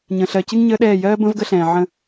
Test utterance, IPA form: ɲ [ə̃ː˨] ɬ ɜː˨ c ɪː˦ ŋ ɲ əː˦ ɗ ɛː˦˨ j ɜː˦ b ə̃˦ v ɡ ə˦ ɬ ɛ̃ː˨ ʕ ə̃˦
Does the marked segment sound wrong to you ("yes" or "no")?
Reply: no